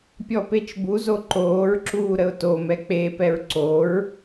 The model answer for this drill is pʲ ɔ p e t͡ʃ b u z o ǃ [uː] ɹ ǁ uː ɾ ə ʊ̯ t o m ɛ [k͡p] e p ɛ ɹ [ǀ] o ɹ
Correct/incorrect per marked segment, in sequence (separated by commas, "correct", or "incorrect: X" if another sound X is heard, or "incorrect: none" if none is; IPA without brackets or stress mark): incorrect: oː, correct, correct